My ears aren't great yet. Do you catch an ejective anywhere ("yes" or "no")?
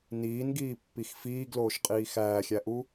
yes